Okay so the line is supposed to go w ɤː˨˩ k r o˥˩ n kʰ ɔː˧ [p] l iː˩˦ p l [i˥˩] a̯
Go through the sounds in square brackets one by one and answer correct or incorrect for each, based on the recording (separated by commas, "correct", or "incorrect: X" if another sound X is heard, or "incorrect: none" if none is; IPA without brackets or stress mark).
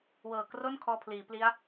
incorrect: pʰ, incorrect: i˦˥